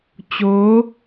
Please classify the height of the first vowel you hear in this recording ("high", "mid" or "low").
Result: mid